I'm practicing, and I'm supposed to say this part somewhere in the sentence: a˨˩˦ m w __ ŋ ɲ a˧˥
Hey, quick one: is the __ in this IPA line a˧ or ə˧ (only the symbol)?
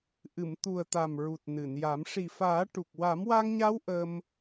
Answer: a˧